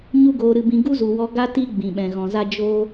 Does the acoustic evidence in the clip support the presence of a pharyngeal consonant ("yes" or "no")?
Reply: no